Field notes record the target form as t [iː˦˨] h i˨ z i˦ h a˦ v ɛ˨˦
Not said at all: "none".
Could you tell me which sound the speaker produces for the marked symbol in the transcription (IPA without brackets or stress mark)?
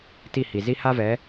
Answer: i˦˨